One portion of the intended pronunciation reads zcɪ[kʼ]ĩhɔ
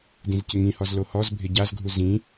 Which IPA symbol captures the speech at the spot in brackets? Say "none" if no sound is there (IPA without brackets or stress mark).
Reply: ŋ